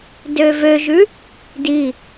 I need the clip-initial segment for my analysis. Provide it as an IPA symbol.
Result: d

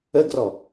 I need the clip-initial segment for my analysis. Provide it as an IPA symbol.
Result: ə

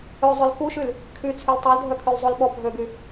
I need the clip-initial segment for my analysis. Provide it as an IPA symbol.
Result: œ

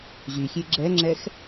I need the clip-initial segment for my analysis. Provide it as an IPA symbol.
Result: ʑ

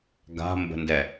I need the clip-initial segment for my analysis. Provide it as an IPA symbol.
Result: ɡ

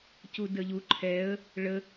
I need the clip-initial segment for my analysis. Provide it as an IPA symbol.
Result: c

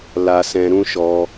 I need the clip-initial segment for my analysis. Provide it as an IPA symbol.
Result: l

